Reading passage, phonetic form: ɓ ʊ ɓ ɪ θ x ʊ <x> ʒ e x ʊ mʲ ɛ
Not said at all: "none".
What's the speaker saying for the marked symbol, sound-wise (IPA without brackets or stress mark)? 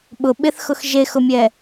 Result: x